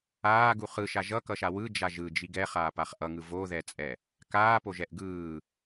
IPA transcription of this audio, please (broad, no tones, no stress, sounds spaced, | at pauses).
aː ɡ u χ ɯ ʃ a ʒ ʌ k ʌ ʃ a w ɯ d͡ʒ a ʒ ɯ d͡ʒ i ɡ ɛ χ aː p a χ ʔ ʌ ŋ ɯ v o ð ɛ t͡sʼ ɛ | k aː p o ʒ ɛ ʔ ɡ ɯː